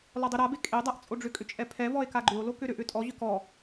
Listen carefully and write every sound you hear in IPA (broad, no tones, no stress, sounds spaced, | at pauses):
l ɔ dˤ ʏ ɾ a b e kʼ e dˤ a ʔ t͡sʼ o ɖ͡ʐ ʏ kʼ ʏ t͡ʃʼ ɛ pʰ ɛ v ɔ e̯ k a ɡ͡ǃ ʏ o̯ l o k ʏ ɾ ʏ ʔ ʏ tʼ ɔ ʑ ʏ k ɔ